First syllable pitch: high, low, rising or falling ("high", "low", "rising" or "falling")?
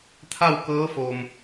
falling